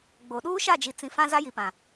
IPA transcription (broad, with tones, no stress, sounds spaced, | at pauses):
ɡ͡b o˨ ɗ uː˦ ʃ a˦˨ d͡ʒ i˨ t͡s ĩ˨ f ã˦ z a˦ j i˨ p ã˨